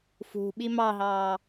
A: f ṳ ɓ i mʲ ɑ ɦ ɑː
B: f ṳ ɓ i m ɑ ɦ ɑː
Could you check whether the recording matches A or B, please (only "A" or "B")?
B